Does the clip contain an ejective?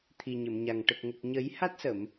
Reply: no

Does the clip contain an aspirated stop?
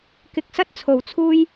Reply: yes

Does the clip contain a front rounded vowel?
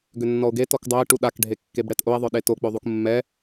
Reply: yes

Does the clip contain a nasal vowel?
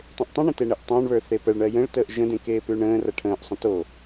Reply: yes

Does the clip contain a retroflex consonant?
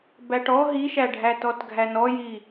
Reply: yes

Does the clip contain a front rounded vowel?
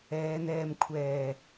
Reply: no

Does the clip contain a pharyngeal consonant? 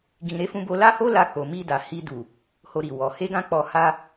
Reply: no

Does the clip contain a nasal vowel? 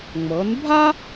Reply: no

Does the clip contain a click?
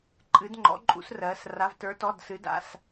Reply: yes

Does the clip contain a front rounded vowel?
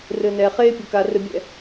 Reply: no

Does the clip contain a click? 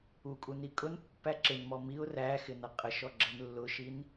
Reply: yes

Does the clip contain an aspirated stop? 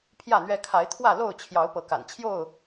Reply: yes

